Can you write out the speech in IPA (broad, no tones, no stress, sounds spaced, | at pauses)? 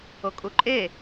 o kʼ u ǃʼ e